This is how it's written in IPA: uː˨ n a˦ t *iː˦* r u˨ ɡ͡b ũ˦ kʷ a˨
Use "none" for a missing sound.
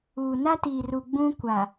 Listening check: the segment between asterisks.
iː˨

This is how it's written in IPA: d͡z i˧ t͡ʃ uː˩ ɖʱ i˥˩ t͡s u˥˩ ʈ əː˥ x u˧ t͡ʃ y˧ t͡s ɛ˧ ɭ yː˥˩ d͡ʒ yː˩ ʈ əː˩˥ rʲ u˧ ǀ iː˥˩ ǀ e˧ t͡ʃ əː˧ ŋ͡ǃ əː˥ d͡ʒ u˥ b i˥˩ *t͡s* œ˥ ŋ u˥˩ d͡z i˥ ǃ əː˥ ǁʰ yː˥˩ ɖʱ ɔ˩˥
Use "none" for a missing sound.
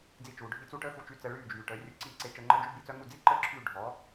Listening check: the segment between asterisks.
t͡s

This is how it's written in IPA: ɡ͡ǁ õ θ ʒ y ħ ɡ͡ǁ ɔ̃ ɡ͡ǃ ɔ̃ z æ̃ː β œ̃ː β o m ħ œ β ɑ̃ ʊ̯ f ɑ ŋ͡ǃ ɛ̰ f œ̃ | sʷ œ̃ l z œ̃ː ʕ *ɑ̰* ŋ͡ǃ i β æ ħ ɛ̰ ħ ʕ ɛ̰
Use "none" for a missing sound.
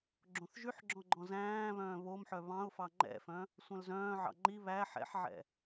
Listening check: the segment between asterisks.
ɑ̰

